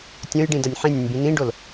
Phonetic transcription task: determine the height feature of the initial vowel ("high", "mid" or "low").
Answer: mid